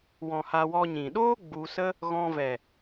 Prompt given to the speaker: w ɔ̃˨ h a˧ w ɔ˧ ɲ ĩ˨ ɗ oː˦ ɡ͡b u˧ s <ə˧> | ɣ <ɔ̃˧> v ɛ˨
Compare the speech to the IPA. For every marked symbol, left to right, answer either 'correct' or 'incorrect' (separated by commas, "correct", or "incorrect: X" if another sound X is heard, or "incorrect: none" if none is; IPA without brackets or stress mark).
incorrect: ə˦, correct